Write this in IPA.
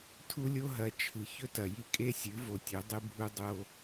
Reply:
tʰu˦lʲo˦ɦɐ˨˦ t͡ʃʰɨ˨ çɵ˦tɐ˨ji˦ kʼe˦sʲɨ˨˦vo˨tʲɵ˨˦ dˤɨ˦bʱu˦ dˤo˦

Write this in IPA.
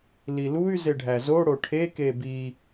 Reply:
liluy̯ zeɖʱæzo ɽoʈʰe kebi

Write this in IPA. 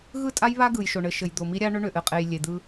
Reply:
ɣɯ˦˨tʼa˦jβa˦ ɡɯ˨jʃo˨ɳɘ˨ʃɘ˨j d̪o˨mi˦ɾʲa˦ ɳʏ˦ɳʏ˨ ʔɘ˨qʼe˨j lʲe˨d̪ɯ˦

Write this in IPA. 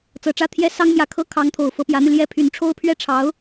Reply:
t͡sɤ˨˩ʈ͡ʂä˥˩t̪ʰjɛ˥ sɑ˥ŋmjä˧˥kʰɤ˥ kʰɑ˧˥ŋt̪ʰo˨˩ʊ̯ fɤ˧˥pjä˧˥n̪y˧ ljɛ˥˩ pʰy˧˥nʈ͡ʂʰo˥ʊ̯pʰɥɛ˥˩ʈ͡ʂʰɑ˧˥ʊ̯

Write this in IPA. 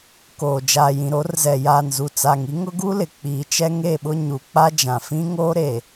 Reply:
koː˨ d͡ʒaː˨jĩ˨ɾo˨˦rzɛ˨ jaː˨nzu˨t͡sa˨ŋi˦ ŋʊ˦ɡu˦lɪ˨ k͡piː˨t͡ʃɛ˦ŋe˦˨ɓʊ˦ ɲu˨k͡pa˦d͡ʒã˨ fĩ˦ŋoː˦ɾe˨

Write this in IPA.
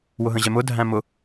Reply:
wʊɦə̃ʑɛmʊ dʱæ̃mʊ

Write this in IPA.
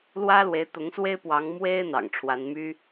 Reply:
lwä˥ lwe˧˥ɪ̯t̪ʊ˧˥ŋswe˥ɪ̯pwɑ˧˥ŋ mwe˥ɪ̯ n̪ɑ̰˨˩ŋʈ͡ʂʰwa˧˥nmy˥

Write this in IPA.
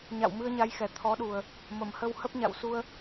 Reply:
ɲa̰˧˨wmɨ˧ə̯ɲa˨˦jxɛ˨˩ t̪ʰɔ˨˦ɗu˨˩ə̯ | mə˧˩mhə˧whə˦˥p̚ ɲa̰˧˨wsu˧ə̯

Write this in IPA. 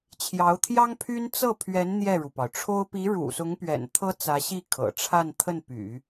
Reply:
t͡ɕʰjɑ˧˥ʊ̯t̪ʰjɑ˥ŋpʰy˥n t͡sɤ˥˩pʰɥɛ˧˥n n̪jɛ˥˩ɻu˩pɑ˩ʊ̯ ʈ͡ʂʰo˥ʊ̯ pi˧˥ɻṵ˨˩sʊ˧˥ŋpɥɛ̰˨˩n t̪ʰɤ˥t͡sä˧˥ ɕi˥˩kʰɤ̰˨˩ʈ͡ʂʰa˥˧n t̪ʰə˥˩npy̰˨˩˦

